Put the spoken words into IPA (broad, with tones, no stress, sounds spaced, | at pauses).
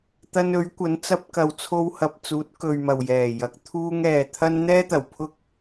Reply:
t̪ ɐ˧ n ɵ˨˥ ɥ kʷ ɐ˨˥ n t͡s ɐ˧ p̚ k ɐ˨ w t͡sʰ o˧ w h ɐ˨ p̚ t͡s uː˨˥ t̚ k ɵ˨ ɥ m ɐ˨˩ w j ɛː˨˩ j ɐ˨˥ k̚ t̪ʰ uː˧ ŋ ɛː˨ t̪ʰ ɐ˧ n n̪ ɛː˥ t̪ ɐ˨˩ w pʰ ʊ˥ k̚